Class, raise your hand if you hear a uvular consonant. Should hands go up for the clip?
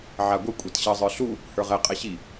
yes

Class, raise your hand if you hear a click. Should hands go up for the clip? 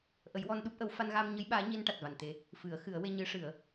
no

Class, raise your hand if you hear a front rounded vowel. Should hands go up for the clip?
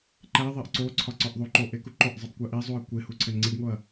no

